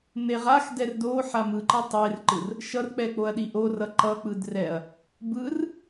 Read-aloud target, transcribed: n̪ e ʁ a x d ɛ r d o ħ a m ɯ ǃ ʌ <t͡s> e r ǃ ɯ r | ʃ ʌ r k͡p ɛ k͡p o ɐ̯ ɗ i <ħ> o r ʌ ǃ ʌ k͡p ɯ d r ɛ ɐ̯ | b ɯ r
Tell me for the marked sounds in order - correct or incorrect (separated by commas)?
incorrect, incorrect